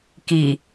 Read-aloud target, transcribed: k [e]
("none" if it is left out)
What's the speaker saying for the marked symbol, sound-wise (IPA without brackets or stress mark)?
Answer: i